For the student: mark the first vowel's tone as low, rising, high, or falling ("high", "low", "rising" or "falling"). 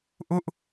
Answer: high